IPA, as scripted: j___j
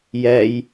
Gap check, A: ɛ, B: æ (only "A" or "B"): A